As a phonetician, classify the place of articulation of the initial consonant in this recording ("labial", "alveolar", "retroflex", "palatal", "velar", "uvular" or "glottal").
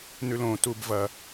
alveolar